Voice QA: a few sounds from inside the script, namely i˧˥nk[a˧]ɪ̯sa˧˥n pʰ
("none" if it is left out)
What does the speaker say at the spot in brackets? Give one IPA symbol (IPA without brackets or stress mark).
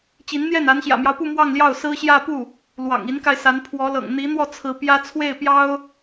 a˧